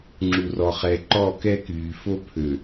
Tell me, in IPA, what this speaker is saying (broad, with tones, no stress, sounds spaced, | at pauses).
ŋ͡ǁ u˨ r ɔ˨ χ ɛ˨ ǃ ɔ˦˨ k ɛ˦ k yː˨ f o˦ pʰ ø˨